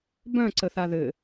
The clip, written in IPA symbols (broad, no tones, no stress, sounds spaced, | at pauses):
b œ̃ ǀ ə θ a ð ɘ